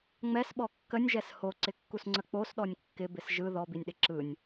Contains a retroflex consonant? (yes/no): no